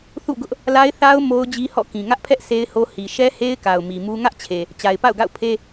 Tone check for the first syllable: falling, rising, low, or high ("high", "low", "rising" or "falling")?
falling